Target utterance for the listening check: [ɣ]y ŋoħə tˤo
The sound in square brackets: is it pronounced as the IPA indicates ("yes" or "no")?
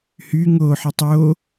no